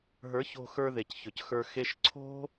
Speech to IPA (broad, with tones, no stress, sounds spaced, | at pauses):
ɦ ə˞˨˦ ç o̤˧ x ə˞˧ ð e˨ c ç ɵ˨ c x ə˞˧ x e˧ ʃ ǀʰ o̤˦